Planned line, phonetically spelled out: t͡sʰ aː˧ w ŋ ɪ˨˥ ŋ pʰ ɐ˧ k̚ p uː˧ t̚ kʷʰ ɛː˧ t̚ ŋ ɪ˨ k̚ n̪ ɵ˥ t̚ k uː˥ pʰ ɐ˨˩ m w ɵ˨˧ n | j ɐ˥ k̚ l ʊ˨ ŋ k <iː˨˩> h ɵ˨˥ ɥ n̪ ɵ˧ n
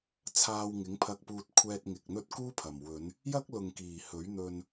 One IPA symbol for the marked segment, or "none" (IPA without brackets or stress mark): iː˨˩